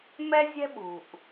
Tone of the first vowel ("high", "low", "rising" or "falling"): high